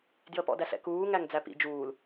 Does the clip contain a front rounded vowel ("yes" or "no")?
no